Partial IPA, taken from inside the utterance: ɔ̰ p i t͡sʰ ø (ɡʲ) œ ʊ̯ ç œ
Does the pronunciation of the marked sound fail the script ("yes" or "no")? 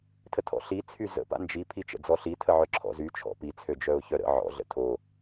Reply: yes